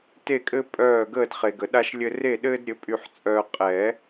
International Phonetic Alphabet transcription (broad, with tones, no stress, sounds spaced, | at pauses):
t e˦˨ kʼ ɘ˦ pʼ œː˦˨ ɡ əː˦˨ d χ e˨ ɡ ə˨˩˦ ɗ a˦ ʃ lʲ ɘ˦ r e˦˨ ɗ ɘː˦ d ɾʲ ɘ˩˥ pʼ y˦ ħ t͡sʼ œː˦ qʼ ɛ˨˩˦